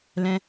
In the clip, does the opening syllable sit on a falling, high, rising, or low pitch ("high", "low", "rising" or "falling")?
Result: high